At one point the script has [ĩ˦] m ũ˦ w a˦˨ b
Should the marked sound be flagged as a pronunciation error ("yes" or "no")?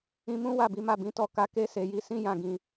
yes